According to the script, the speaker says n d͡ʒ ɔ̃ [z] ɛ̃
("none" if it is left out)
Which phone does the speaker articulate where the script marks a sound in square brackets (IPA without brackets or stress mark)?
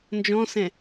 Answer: s